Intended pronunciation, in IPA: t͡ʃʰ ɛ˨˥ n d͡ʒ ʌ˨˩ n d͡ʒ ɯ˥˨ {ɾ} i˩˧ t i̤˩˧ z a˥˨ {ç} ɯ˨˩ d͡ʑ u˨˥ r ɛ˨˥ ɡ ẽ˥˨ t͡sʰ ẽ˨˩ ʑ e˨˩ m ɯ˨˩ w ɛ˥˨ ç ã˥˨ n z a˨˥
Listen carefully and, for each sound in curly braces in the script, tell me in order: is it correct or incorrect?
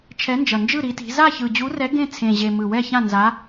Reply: correct, correct

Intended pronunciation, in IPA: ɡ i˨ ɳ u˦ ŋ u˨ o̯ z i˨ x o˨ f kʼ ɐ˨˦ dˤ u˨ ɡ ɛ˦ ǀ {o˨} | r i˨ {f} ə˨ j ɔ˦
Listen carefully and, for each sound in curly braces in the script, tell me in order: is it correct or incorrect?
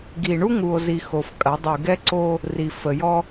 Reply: incorrect: o˦, correct

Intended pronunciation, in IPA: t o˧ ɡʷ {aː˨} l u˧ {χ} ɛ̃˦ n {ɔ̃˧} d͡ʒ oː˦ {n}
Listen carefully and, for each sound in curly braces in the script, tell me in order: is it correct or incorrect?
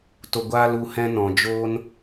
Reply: incorrect: aː˦, incorrect: h, incorrect: ɔ̃˨, correct

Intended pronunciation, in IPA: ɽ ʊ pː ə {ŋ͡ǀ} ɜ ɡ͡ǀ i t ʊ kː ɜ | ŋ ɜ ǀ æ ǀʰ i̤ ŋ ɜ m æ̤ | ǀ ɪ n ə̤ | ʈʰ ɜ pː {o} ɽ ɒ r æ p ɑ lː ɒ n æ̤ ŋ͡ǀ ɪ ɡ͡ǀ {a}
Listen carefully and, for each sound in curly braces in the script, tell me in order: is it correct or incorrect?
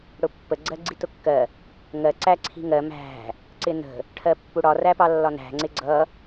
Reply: incorrect: ɡ͡ǀ, incorrect: u, incorrect: ʌ

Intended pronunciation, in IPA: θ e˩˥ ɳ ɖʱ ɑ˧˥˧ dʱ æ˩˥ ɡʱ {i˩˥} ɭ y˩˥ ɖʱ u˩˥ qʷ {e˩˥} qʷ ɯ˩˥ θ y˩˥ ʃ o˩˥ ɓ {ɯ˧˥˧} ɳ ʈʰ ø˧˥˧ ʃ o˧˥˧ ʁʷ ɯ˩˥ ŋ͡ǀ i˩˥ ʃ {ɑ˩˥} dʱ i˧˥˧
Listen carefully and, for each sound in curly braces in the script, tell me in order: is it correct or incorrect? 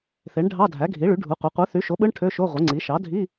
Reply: correct, correct, correct, correct

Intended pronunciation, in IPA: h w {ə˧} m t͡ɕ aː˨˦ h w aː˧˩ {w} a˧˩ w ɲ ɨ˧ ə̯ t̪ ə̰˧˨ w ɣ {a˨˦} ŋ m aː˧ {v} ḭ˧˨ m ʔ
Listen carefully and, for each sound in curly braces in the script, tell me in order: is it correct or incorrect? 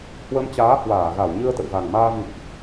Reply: correct, incorrect: ɣ, incorrect: a˨˩, correct

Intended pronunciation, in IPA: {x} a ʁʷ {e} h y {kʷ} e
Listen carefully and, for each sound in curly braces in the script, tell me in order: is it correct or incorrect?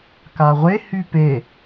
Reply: incorrect: k, correct, incorrect: p

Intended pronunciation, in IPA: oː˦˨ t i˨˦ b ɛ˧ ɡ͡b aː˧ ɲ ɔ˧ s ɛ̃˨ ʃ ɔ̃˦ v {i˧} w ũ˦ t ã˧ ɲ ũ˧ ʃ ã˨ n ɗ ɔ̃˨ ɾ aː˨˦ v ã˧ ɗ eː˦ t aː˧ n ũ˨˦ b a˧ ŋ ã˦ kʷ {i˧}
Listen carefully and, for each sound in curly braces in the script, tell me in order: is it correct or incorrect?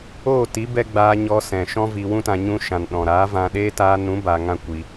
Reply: correct, correct

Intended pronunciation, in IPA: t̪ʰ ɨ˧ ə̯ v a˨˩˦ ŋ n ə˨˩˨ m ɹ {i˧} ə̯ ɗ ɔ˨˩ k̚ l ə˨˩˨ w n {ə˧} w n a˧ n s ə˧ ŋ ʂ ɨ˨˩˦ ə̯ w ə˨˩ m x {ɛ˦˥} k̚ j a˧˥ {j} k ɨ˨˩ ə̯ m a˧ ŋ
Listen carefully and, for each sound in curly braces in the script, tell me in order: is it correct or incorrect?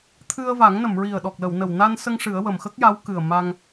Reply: incorrect: i˨˩, incorrect: ə˨˩, incorrect: ə˦˥, incorrect: w

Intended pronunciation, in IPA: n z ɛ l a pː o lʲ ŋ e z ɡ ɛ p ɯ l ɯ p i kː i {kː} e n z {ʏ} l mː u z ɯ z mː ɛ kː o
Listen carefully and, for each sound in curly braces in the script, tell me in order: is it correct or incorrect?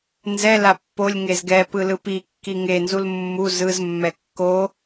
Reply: incorrect: ŋ, incorrect: u

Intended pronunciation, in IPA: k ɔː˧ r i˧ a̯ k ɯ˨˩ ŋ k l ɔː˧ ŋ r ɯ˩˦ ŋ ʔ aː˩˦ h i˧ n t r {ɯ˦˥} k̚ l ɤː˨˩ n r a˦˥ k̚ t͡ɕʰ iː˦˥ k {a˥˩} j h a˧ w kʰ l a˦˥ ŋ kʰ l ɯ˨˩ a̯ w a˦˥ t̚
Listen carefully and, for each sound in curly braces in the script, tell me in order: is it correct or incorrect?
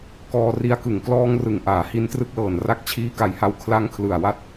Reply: correct, incorrect: a˨˩

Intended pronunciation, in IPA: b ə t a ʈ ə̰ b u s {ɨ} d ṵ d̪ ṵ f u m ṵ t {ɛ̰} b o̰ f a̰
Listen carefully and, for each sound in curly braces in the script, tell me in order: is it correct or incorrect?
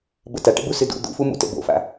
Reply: correct, incorrect: ə̰

